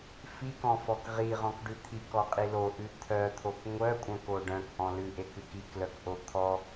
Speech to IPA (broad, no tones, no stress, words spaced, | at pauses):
fikɔ̃fɔk ʁiʁɔ̃kɖʉ t̪ʰikɔqʼi loʔʉ t̪ʰœt̪ʰok ŋʷœkʷʼœ̃ko ɖœ̃kʔɔ̃ lʉʔekʉk iklœkʔo t̪ʰɔ